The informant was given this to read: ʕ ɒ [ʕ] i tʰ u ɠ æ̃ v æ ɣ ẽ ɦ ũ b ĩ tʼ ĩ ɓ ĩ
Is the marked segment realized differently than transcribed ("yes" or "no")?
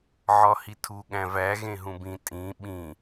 yes